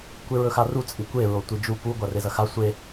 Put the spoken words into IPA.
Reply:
kʷ e ɹ ɵ x a r u t͡sʼ i kʷ e ɹ o tʷ i d͡ʒ u p u ɡʷ a r e z ɐ x a sʷ e

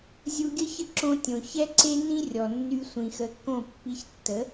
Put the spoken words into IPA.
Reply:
zʲ u˧ ɡʲ ə˥ ç ə˥˩ ǁ õ˧ tʲ õ˩ ç ɛ˥ ǀ e˥ n ĩ˥ rʲ ɔ˩ nː y˧ sʷ ĩ˩ x ə˩˥ kː õ˥˩ pː i˧ ç tː ə˩˥

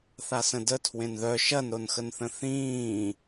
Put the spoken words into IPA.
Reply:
θ a s ə̃ d ə tʰ w ẽ n ð œ ʃ ɐ n ɾ o n x ə n θ ə̃ θ ĩː

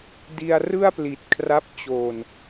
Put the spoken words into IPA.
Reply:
d i˧ a̯ r ɯ˥˩ a̯ p l i˨˩ t̚ kʰ r a˦˥ p̚ t͡ɕ oː˨˩ n

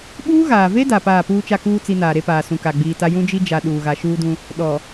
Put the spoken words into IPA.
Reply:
ɓ uː˦ ɣ aː˨ v e˦ d a˨ p aː˦˨ p uː˦ t͡ʃ a˦ k uː˦ t͡s i˦ n aː˨ ɾ e˦ p aː˨ s ũ˨ k a˨ ɡ͡b iː˨ t a˦ j ũ˦ d͡ʒ i˦ d͡ʒ a˨ ɗ uː˨ ɣ a˨ ʃ uː˦ d ũ˦ | ɗ ɔ˨

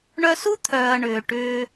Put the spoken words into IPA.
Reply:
ɳ œ˧ s u˦ t̪ʰ œː˨ ɐ̯ ɳ ʏː˨ ʈ ʏː˧

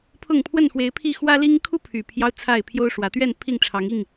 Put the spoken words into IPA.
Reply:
pʰ ʊ˥˨ ŋ pʰ w ə˥˨ n x w e˨˦ ɪ̯ pʰ i˥˨ x w ä˦ l i˦ ŋ kʰ u˦ pʰ y˨˩ pʰ j ɑ˦ ʊ̯ t͡sʰ a˥˨ ɪ̯ pʰ j o˦ ʊ̯ ʂ w ä˨˦ t̪ ɥ ɛ˥˨ n pʰ i˥˨ ŋ ʈ͡ʂʰ ɑ˨˦ ŋ i˥˨ ŋ

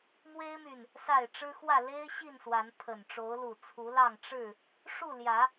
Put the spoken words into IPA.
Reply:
m w e˦ ɪ̯ m y˨ n | s a˥˨ ɪ̯ ʈ͡ʂ ɻ̩˦ x w ä˥˨ l e˦ ɪ̯ ɕ i˥˨ n s w a˨˦ n pʰ ə˨˩ n ʈ͡ʂ o˨˦ ʊ̯ l u˨˩ t͡sʰ u˨˦ l ɑ˥˨ ŋ ʈ͡ʂ ɻ̩˥˨ | ʂ u˥˨ l j ä˨˦

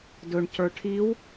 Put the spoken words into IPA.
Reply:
d ɵ ɳ c ə˞ ʈʰ i w

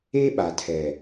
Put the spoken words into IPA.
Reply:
e˦ ɓ a˨ tʰ ɛ˨

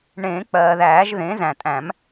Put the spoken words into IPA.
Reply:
ɳ ẽː˨˩˦ k͡p ɜː˩ ð æː˨˩˦ ʒ ð ẽ˩˥ z æ̃˩ tʼ æ̃˨˩˦ m

